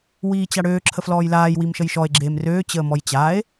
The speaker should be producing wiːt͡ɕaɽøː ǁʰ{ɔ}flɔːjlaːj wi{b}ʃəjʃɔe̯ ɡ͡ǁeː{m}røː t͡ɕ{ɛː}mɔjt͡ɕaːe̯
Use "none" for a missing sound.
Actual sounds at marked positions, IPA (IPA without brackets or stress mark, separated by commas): ə, m, m, əː